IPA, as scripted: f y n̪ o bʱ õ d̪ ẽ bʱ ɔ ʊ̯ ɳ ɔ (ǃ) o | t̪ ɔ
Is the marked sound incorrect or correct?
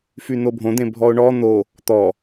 incorrect